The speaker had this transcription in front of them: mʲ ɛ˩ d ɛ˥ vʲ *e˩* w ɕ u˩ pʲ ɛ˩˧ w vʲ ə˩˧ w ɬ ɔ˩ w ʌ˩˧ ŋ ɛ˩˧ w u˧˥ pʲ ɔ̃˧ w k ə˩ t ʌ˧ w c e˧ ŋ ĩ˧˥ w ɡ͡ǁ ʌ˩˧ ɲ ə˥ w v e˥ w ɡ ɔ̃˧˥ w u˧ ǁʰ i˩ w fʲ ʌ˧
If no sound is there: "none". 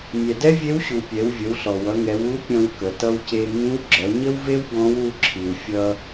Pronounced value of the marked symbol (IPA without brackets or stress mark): e˧˥